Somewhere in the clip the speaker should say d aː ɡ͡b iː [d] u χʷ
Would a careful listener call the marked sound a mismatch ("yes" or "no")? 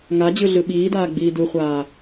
no